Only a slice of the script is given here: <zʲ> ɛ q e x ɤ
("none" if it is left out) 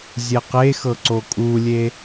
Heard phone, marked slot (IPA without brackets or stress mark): zʲ